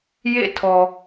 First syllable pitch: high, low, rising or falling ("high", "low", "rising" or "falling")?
falling